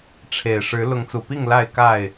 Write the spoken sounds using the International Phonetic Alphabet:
ʈ͡ʂʰe˨˩ɪ̯ ʂɻ̩˨˦ lʊ˨˦ŋt͡su˨˩pi˥˨ŋ la˥˨ɪ̯ ka˥˨ɪ̯

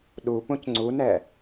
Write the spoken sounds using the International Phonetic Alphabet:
ɗu pũcŋ͡ǀunɛ

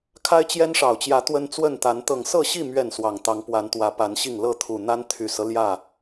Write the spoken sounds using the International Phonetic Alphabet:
kʰa˦ɪ̯t͡ɕjɛ˦nʂɑ˨˩ʊ̯t͡ɕjä˨˦ t̪wə˦nt͡swə˥˨nt̪a˨˦n t̪ɤ˨˩ŋsɤ˥˨ɕi˥˨ mɥɛ˥˨nswɑ˨˩ŋt̪ɑ˨˦ŋ pwa˨˦nt̪wä˨˦ pa˨˦nɕi˥˨ŋ lɤ˥˨t̪ʰu˨˩n̪a˦n t̪ʰy˨˩sɤ˦ ljä˥˨

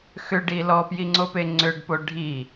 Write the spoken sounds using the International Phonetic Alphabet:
xʏɖi lɔpjiŋ͡ǀope ŋ͡ǀʏɖpo ɖʱi

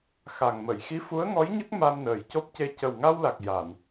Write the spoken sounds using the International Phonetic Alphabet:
xa˨˩ŋmə˨˩˨j xi˧˥fu˧˥ə̯ŋɔ˧˥jɲə˦˥k̚ ma˧mnəː˨˩j co˦˥p̚ce˧ cə˨˩wŋa˧wla˨˩k̚ ja˨˩˨n

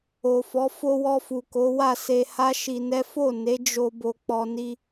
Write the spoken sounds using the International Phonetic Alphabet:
o˨fɔ˨˦fo˦ wɔ˧fu˨ko˨˦wa˦˨ se˧ha˦ʃi˧nɛ˦ fo˦˨ne˨˦d͡ʒo˧ bo˦k͡pɔ˦ ni˦

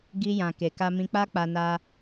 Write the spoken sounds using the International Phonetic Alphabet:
ɡi˦jã˧ ke˧ka˦mĩ˦ k͡pa˦k͡pa˧na˧

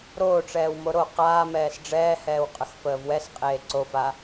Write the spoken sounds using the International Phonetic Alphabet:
ɾoːʈ͡ʂɛːwmo ɾo qaːmɛːs ɖ͡ʐɛːhɛːwqʼəxfəːv wɛsqʼeː ǀofa

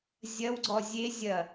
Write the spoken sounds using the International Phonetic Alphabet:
zʲɐwɡ͡ǀɔ zʲe zʲɐ

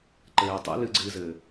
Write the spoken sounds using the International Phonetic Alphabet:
ǃɘː tˤḛ lɨɡ͡ǀɨːzɘː

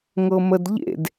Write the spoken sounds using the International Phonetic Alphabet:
ŋɤmədʎḛd

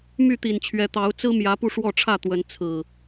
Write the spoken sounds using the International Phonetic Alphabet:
my˥˨t̪i˨˩nt͡ɕʰɥɛ˨˦t̪ɑ˨˦ʊ̯ t͡sɹ̩˦mjä˨˦pu˧ ʂwɔ˥˨ʈ͡ʂʰä˥˨t̪wə˨˦n t͡sʰɹ̩˨˩

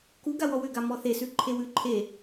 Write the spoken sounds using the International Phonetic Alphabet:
kuɡawɔ wʏɡa mɔθesʉ ǃʰewʉ ǃʰe

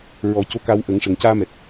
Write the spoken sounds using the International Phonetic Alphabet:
ɹɔ˨˩˦co˧˥ka˧w ʔə˨˩˦ŋʂə˨˩ŋcaː˧mɛ˨˩t̚

